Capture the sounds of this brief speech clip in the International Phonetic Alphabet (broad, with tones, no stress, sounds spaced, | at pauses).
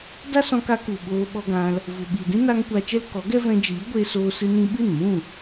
d a˦ s ɔ̃˧ k a˧ k u˨ ɓ oː˧ ɓ ɔ˧ ɡ ã˧ l | v u˨ ɓ iː˨ d ĩ˦ n a˧ ŋ kʷ a˧ t͡ʃ ɛ˦ l k ɔ˨˦ ɡ ɛ˦ v ɛ̃˧ d͡ʒ iː˨˦ ɡʷ e˧ s oː˧ s ɨ˧ n ĩ˧ ɓ ɨ˦˨ n m ũ˦˨